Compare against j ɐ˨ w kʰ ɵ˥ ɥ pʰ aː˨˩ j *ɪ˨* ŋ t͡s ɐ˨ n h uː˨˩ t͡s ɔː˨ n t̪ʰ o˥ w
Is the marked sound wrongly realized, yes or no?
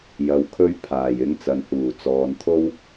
yes